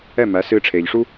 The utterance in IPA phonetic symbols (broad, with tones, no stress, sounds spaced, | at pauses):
ɛ˥˩ m æ˩˥ s ɨ˧ ʈ͡ʂʰ e˩ ʎ ʂ u˥